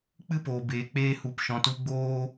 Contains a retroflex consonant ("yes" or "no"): no